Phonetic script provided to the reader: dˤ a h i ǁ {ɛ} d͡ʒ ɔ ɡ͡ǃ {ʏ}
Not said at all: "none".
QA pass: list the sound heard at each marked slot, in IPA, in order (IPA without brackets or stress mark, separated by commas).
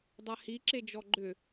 e, ʏ